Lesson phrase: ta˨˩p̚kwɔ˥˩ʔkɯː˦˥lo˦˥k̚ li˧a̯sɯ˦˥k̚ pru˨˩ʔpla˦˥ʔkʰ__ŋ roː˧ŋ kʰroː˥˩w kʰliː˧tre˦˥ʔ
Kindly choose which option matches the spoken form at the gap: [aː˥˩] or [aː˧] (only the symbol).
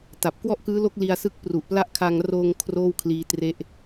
aː˧